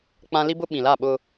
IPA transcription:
k͡p ã˦ l i˦ b ʊ˦ ɓ ĩ˨ l a˦˨ ɓ ʊ˦

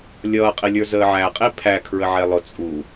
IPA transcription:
lʲ ʌː qʼ i lʲ ə˞ z əː ʕ æ qʼ i pʰ æ kʰ ɹ ə ʕ ɛ lˠ ʊ t͡sʼ u

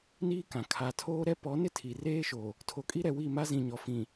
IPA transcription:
n iː˦ k ã˨ kʰ a˨ tʰ oː˦ ɾ ɛ˦ p ɔ˨˦ n ɪ˦ tʰ i˨ r eː˦ ʃ o˨ | tʰ o˨ kʼ i˦ ɾ ɛ˨ w i˦˨ m a˦ z ĩ˨ ɲ ɔ˨ f ĩ˨

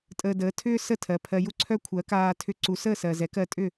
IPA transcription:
tʼ əː˧ d əː˩˥ tʰ ʏː˥ s ə˥˩ tʰ ɜ˩ pʰ ɜ˧ j u˥ ǀʰ œ˥ kʷʰ ɜ˩˥ k aː˧ tʰ ʏ˧ ǀ u˩˥ s əː˥˩ s ɜ˩ z ɛ˩˥ k ɜ˧ tʼ ʏ˥˩

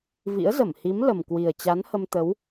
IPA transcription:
v ḭ˧˥ ə̯ z ə˧˩ m h i˨˦ m l ə˨˩ m k w i˨˩ ə̯ t͡ɕ a˨˦ n h ə˧ m t̪ ə˨˦ w

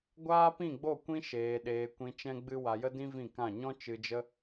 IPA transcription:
ɡʷ aː˦ p ĩ˦˨ ɡ͡b o˦˨ kʷ ĩ˦ ʃ eː˨ ɗ eː˨ kʷ ĩ˧ t͡ʃ ɛ̃˧ ɡ͡b ɨ˧ w a˧ j ə˦ d ĩ˦ v ĩ˦˨ k ã˦˨ ɲ ɔ̃˦ t͡ʃ ɨ˧ d͡ʒ ə˦

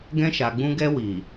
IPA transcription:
ɡ ɛ̃˧ ʃ a˨ ɡ͡b ũ˧ ɡ ɛ˧ w i˨

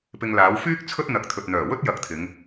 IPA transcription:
p ɪ˧ ŋ l aː˨˥ w f yː˥ k̚ t͡sʰ ɵ˥ t̚ n̪ ɐ˨˥ k̚ t̪ʰ ɵ˧ t̚ n̪ œː˨˩ w ɵ˥ t̚ j ɐ˧ k̚ t̪ʰ ɪ˨˧ ŋ

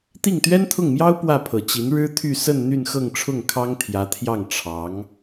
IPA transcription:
t̪ i˥˩ ŋ t̪ ɥ ɛ˥ n t̪ʰ ʊ˥˩ ŋ m j ɑ˥ ʊ̯ p w ä˥˩ pʰ ɤ˨˩ t͡ɕ i˧˥ n ɻ ɻ̩˥ t̪ʰ y˥˧ s ə˥˧ n n̪ y˥˧ n x ɤ˥˧ ŋ ʈ͡ʂʰ ʊ˥˩ ŋ kʰ ɑ˥ ŋ t̪ʰ j ä˧˥ t̪ʰ j ɑ˥˩ ŋ ʈ͡ʂʰ ɑ˧˥ ŋ

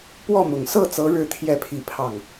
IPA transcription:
p w ɔ˥˩ m ʊ˨˩ ŋ s ɤ˥˩ t͡s ɤ˧˥ ɻ ɻ̩˥˧ t̪ʰ j ɛ˥˧ pʰ i˥˧ pʰ ɑ˥˩ ŋ

